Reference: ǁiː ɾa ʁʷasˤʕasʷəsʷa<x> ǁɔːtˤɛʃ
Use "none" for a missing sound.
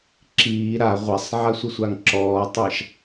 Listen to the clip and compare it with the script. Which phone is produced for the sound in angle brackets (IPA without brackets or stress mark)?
ŋ